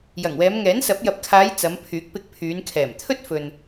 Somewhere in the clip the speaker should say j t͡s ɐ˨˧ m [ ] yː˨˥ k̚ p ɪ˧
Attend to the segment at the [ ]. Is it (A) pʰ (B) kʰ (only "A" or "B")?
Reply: A